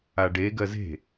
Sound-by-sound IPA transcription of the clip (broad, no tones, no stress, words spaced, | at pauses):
aɖe ɡɜze̤